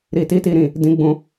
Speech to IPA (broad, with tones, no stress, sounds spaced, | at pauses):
ɾ i˨ t i˧ t i˨ ɾ ĩ˨ | d ĩ˨ ɡ͡b ũ˨